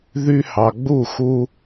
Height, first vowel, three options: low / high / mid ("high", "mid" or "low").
high